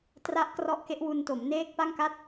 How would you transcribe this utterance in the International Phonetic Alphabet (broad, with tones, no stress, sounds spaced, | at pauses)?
t r a˦˥ ʔ k r ɔ˦˥ ʔ k e˦˥ ʔ w u˧ n t o˩˦ m n eː˦˥ k̚ p a˥˩ ŋ k a˥˩ t̚